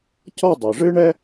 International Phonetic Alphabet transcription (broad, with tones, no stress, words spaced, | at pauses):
cɔ˥˧dˤɨ˩ʐɨ˥ ɳɛ˥